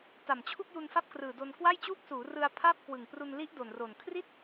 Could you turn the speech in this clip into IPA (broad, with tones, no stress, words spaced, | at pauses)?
ta˨˩mt͡ɕʰu˥˩k̚ju˧n fa˥˩p̚krɯː˨˩do˧n kwa˥˩jt͡ɕuː˥˩k̚suː˩˦rɯ˧a̯ pʰa˥˩p̚ kwɯ˨˩ŋpru˧n li˦˥ʔ do˨˩nro˨˩n kʰri˥˩t̚